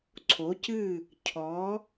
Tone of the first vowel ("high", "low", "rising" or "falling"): rising